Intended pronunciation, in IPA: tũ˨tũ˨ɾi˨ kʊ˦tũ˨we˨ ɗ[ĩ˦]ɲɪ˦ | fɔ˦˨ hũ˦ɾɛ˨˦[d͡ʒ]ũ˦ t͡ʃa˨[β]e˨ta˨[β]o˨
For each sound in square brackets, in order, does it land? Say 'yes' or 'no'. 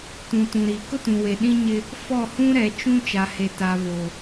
yes, no, no, yes

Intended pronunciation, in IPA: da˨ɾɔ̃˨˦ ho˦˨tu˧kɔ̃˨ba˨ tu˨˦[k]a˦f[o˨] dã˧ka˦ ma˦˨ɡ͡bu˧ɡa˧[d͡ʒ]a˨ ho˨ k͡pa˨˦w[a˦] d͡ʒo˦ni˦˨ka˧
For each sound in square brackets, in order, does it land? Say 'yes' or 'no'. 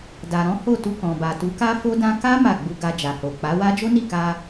yes, no, yes, yes

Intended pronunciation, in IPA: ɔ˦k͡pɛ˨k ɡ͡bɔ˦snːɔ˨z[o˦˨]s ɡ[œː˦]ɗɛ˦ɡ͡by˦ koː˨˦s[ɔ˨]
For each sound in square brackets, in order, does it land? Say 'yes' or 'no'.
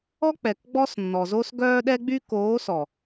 no, yes, yes

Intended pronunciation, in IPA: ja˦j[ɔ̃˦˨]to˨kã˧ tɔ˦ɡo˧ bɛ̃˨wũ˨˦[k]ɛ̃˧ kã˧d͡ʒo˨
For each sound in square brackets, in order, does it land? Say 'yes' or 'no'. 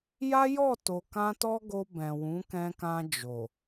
no, yes

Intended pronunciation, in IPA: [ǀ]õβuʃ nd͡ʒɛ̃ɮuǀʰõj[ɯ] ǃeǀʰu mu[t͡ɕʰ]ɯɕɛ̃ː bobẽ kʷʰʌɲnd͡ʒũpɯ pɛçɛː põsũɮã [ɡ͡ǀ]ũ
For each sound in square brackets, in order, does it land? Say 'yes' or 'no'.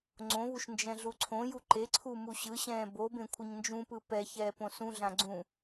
no, no, no, yes

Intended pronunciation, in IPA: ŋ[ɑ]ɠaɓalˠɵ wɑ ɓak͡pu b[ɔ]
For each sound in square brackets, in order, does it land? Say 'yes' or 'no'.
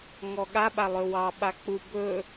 no, no

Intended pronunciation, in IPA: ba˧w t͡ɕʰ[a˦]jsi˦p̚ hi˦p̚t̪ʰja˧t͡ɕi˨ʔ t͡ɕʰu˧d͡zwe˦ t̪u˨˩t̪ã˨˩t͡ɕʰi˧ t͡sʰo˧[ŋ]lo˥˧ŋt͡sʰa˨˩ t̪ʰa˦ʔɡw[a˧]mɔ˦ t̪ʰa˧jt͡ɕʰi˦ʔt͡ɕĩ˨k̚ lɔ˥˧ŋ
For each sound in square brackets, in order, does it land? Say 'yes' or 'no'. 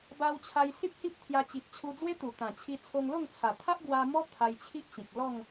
no, yes, yes

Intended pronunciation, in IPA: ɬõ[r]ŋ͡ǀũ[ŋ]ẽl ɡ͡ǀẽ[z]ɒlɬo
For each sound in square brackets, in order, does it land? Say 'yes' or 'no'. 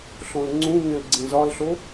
no, yes, yes

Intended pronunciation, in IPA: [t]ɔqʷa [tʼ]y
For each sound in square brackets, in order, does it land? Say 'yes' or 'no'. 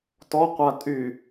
yes, yes

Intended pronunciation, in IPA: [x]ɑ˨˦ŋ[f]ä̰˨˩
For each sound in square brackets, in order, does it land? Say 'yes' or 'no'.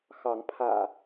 yes, no

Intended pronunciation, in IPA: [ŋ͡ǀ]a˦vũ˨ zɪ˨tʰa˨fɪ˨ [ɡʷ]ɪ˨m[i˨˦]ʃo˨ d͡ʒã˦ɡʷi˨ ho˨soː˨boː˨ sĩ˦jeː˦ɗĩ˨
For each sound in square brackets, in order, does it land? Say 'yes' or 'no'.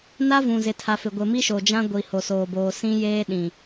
no, yes, no

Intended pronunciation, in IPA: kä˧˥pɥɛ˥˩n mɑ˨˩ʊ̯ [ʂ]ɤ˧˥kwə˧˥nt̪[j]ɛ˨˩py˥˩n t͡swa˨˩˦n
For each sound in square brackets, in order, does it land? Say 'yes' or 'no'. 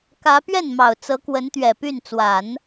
no, no

